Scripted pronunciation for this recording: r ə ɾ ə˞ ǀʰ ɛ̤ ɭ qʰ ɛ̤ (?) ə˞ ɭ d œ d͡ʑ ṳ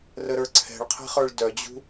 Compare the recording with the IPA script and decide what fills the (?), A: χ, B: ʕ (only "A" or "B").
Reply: A